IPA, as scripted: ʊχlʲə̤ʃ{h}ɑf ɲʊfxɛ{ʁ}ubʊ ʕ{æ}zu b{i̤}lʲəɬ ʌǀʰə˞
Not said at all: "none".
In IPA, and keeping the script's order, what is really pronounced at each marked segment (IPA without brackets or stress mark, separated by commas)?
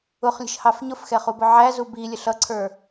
h, χ, æ, i